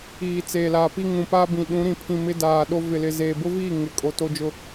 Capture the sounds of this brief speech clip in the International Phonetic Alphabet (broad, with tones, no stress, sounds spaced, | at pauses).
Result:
iː˨ t͡s eː˨ l aː˨ p i˦ ŋ ũ˨ p aː˦ b ĩ˨ ɗ ũ˨˦ ɾ ĩ˨ pʰ ĩ˨ m ɪ˦ d aː˨ ɗ o˦ v ɪ˨ l ɪ˨ z eː˨ b ʊ˦ v iː˦˨ ŋ ɪ˨ kʼ o˨ t o˦ d͡ʒ ʊ˦